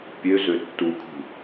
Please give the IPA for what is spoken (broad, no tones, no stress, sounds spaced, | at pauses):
pʲ ø z ø tː u kʰ ṳ